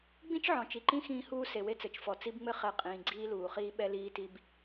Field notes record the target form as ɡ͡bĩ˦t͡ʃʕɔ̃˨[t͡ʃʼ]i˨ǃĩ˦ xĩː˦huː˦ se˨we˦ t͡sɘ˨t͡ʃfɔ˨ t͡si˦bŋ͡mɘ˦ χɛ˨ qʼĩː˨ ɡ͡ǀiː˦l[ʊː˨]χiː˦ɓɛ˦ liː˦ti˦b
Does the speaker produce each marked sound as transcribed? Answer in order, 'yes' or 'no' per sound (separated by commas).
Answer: no, no